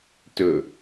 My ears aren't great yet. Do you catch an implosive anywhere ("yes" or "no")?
no